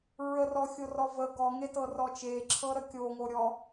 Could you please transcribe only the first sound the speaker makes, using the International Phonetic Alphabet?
ɹ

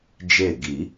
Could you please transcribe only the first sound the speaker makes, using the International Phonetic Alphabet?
d͡ʒ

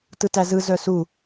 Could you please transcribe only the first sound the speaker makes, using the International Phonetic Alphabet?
t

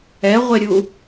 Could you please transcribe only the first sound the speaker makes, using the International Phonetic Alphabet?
ɛ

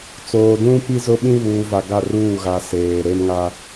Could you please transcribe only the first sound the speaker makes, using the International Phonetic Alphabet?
t͡s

